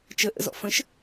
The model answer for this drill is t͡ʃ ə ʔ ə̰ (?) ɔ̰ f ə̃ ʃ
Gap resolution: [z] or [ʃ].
z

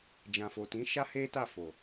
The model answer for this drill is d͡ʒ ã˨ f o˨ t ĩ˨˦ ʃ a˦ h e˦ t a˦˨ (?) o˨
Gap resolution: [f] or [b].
f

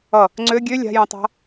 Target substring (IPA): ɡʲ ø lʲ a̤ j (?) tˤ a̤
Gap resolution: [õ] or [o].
õ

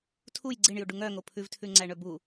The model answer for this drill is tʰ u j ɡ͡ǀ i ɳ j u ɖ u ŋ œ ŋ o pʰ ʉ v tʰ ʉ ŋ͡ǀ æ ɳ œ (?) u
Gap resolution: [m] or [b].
b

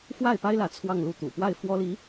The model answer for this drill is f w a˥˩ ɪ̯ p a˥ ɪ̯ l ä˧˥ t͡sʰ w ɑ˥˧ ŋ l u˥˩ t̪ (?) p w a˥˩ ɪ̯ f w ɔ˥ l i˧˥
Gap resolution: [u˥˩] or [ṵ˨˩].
ṵ˨˩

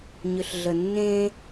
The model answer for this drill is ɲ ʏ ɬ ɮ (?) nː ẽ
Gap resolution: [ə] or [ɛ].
ə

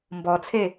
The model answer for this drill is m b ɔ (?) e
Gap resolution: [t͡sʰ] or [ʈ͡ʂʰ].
t͡sʰ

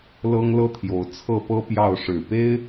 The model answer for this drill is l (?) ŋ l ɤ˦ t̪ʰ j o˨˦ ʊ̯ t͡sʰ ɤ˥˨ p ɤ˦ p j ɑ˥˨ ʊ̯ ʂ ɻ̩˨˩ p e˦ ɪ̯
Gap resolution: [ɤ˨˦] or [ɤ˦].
ɤ˦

